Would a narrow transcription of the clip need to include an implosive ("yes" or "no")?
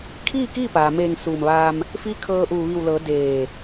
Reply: no